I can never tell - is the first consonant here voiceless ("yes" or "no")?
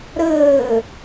no